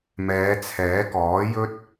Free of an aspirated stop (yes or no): no